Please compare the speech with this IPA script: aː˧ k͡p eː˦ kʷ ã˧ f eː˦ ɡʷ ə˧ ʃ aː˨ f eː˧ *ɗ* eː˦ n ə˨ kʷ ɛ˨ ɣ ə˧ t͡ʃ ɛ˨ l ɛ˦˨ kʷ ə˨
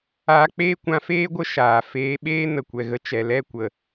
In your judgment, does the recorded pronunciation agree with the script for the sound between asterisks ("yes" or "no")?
no